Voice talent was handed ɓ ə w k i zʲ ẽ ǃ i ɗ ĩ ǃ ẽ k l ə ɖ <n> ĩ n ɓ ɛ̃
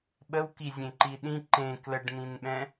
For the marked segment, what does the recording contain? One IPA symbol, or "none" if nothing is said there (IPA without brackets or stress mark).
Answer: n